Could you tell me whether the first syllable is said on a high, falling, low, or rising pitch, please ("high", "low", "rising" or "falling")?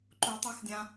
low